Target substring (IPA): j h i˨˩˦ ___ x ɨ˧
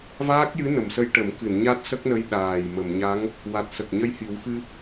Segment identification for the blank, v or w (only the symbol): w